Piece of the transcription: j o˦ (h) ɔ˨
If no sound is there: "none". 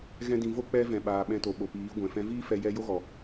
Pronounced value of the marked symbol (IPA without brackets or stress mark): ɣ